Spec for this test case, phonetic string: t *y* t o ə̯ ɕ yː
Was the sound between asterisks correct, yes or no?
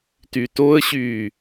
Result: yes